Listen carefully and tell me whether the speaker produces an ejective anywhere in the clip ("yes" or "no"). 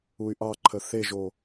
no